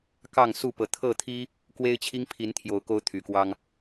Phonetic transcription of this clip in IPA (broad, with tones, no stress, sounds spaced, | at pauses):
k ɑ˥˨ ŋ s u˥˨ p ɤ˨˩ t̪ʰ ɤ˥˨ t̪ʰ i˦ | k w e˦ ɪ̯ t͡ɕʰ i˦ ŋ pʰ i˨˦ n t̪ʰ j o˨˦ ʊ̯ k o˦ ʊ̯ t̪ʰ y˨˩ k w ɑ˦ ŋ